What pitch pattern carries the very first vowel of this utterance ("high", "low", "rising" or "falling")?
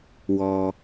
low